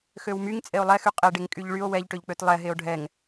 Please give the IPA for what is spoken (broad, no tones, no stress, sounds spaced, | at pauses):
x ø w m y ŋ t͡sʼ e o̯ lˠ ɛ x y qʼ e ɖ e ŋ kʼ y ʎ ɭ y o̯ w ɛ ʎ ʈ ø ʎ k͡p ø t lˠ ɛ ɦ e o̯ ɖʱ ɛ ŋ